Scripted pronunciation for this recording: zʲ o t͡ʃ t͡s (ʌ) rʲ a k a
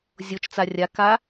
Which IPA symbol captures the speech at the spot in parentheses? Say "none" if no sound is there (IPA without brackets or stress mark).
a